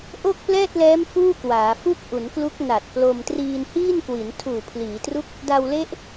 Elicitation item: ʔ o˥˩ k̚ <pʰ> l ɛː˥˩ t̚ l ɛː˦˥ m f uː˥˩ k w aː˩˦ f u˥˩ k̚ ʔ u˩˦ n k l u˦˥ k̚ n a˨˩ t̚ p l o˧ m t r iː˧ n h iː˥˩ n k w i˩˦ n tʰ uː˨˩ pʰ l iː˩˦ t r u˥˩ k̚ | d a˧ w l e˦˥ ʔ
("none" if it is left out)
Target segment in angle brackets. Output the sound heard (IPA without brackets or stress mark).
p